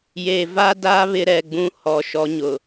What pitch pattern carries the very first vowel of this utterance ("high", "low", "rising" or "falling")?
low